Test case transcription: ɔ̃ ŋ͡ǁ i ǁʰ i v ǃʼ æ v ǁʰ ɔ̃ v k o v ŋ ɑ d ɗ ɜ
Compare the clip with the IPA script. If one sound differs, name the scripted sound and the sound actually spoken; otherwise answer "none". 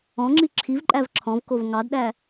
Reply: ɜ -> æ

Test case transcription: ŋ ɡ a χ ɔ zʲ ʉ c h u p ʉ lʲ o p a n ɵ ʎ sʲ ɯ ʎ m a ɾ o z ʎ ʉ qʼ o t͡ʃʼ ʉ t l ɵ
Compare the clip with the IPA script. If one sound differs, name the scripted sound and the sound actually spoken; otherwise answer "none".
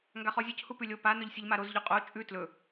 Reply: none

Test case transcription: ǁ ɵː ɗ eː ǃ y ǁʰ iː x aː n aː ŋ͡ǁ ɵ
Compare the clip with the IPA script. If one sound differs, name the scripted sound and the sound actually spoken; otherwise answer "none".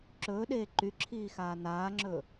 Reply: none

